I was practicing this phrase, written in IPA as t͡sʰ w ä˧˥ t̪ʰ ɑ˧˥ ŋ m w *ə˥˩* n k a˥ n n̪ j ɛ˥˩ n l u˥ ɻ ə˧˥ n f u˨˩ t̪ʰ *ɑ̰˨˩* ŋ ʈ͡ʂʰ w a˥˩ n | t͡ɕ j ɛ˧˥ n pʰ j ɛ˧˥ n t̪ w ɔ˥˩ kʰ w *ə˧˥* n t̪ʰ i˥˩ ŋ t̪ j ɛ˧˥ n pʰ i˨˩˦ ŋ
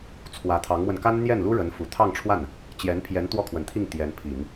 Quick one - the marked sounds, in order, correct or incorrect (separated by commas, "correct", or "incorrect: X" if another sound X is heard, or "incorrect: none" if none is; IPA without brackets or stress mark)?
incorrect: ə˧, incorrect: ɑ˥˧, incorrect: ə˨˩